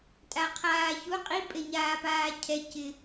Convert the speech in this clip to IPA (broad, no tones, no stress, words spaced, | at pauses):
tʼaqʰaːçu qʼi pʼeɲaːpaːcʰɛ cɪ